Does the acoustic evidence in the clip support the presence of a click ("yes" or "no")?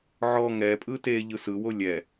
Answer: no